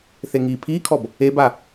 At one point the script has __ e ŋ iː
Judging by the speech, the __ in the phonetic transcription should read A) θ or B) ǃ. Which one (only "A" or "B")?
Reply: A